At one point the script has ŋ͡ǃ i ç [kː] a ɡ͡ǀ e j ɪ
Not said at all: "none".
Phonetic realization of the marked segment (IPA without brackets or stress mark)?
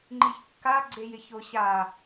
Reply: kː